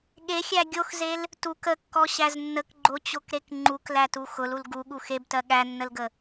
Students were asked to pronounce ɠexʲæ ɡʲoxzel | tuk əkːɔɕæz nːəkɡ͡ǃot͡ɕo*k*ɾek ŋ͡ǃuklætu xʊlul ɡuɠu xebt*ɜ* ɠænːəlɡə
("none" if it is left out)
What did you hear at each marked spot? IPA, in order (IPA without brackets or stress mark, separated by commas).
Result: k, ɜ